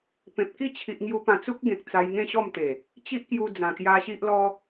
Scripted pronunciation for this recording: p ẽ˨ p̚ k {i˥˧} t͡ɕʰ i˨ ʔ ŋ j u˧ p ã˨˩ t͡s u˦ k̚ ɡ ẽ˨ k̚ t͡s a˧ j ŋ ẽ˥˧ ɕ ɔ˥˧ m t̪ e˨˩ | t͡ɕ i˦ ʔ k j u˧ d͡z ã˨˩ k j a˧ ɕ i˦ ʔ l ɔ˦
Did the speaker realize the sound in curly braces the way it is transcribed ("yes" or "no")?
yes